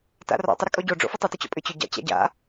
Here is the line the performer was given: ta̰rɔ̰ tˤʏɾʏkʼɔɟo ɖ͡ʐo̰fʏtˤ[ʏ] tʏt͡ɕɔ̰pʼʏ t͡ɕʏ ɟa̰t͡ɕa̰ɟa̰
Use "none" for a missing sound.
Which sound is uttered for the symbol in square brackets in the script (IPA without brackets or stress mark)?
ʏ